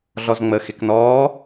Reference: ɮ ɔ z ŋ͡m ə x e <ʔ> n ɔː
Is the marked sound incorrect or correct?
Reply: incorrect